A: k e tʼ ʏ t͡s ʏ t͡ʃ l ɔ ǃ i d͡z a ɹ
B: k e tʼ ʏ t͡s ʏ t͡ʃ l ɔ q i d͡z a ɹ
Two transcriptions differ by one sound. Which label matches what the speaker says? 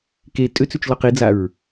B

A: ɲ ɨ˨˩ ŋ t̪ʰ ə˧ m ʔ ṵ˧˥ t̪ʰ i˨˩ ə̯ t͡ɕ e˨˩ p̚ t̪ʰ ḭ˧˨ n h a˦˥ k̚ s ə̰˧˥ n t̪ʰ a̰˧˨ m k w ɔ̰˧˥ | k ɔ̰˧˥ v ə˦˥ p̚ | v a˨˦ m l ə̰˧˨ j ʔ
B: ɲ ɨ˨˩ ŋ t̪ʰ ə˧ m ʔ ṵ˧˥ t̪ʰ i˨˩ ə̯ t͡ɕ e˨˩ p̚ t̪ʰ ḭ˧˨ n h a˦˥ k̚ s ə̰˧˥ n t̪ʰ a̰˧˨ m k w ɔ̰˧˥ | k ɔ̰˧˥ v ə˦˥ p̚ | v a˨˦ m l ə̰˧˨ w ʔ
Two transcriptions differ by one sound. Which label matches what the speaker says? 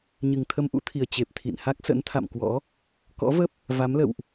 B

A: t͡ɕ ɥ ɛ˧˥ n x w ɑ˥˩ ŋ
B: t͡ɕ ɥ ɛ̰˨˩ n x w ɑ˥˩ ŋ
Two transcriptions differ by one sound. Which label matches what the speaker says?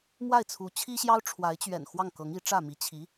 B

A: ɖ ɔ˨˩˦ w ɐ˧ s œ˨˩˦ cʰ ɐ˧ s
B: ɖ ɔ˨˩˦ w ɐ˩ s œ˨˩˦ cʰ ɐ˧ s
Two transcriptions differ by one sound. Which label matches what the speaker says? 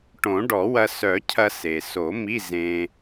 A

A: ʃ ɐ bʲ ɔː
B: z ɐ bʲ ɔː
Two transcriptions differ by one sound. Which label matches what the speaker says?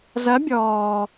B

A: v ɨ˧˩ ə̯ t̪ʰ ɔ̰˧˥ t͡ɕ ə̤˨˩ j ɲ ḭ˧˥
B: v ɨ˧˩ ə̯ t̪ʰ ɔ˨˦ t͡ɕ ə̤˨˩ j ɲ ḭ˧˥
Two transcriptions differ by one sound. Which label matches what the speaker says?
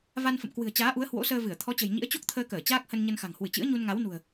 B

